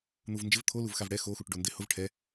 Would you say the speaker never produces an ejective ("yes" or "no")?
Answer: yes